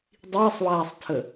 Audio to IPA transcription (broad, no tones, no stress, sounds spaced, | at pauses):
dˤ iː sˤ w aː sˤ tʰ ə